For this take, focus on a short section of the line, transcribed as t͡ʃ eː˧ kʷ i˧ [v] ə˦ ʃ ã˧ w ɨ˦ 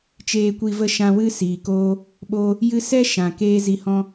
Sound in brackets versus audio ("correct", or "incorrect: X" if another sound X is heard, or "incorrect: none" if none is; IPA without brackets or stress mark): correct